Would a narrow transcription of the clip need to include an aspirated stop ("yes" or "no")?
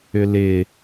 no